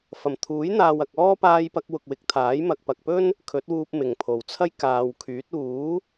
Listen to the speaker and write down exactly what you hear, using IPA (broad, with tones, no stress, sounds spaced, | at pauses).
f ɐ˨˩ m t̪ʰ uː˨˥ j n̪ aː˨ w ɐ˨ k̚ ɔː˥ p aː˧ j p ɐ˧ k̚ w ʊ˨ k̚ w ɪ˨˥ k̚ t̪ʰ aː˨˥ j m ɐ˨ k̚ p ɐ˨ k̚ p ɵ˥ n | kʰ ɵ˨˥ t̚ w uː˧ p̚ m ɪ˨˩ ŋ pʰ o˨˩ w t͡sʰ ɐ˥ j k aː˨ w kʰ yː˨˥ t̚ uː˨˥